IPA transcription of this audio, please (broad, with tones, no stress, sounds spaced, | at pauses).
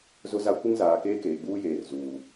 z ʊ˦ z a˦ kʷ ɪ˦ ŋ z aː˨ k eː˦ k eː˨ ɡ͡b uː˦ j eː˨ r z uː˨